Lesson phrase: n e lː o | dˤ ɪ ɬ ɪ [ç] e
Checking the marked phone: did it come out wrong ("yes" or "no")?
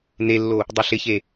no